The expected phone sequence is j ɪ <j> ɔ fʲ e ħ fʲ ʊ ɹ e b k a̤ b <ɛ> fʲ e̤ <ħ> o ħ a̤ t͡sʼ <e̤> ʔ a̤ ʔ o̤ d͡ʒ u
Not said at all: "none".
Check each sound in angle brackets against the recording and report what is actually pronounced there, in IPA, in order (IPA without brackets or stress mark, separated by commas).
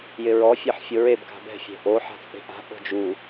ɹ, ɛ̤, ʔ, e̤